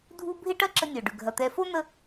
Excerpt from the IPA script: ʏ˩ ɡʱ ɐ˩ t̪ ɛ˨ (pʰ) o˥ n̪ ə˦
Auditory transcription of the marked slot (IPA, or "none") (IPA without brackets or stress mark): f